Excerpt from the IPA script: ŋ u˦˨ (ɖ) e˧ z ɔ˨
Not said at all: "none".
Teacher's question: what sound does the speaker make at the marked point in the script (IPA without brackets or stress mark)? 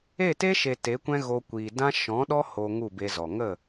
b